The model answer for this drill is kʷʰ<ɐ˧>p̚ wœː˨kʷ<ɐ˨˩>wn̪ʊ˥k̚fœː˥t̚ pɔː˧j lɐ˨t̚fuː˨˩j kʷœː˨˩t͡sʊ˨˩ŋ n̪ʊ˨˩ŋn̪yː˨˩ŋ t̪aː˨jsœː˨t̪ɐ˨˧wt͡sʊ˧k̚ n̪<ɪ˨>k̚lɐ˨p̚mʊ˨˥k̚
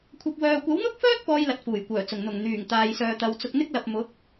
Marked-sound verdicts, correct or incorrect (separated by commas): correct, incorrect, incorrect